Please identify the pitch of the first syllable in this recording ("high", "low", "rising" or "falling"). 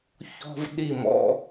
high